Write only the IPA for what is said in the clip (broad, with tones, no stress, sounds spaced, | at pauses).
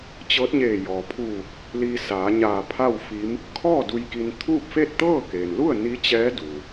t͡ɕ ɤː˧˥ t̚ ɲ eː˧˩ j ɔː˩ pʰ uː˧˩ k̚ | l iː˧ s aː˩˧ ɲ aː˧˩ pʰ a˥˨ w f i˧˥ m | kʰ ɔː˥˨ d u˧ j k i˧ n t̪ʰ uː˥˨ p̚ f e˥˨ t̚ t̪ ɤː˥˨ k eː˩ n l u˥˨ ə̯ n i˧˥ t͡ɕ ɛː˧˥ d u˩